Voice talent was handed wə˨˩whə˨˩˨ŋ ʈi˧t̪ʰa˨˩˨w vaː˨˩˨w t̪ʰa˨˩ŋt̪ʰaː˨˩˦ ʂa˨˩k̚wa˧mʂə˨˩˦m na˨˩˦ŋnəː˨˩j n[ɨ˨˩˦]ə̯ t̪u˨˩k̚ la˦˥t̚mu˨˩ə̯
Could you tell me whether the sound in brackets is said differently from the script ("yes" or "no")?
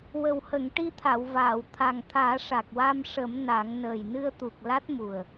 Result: yes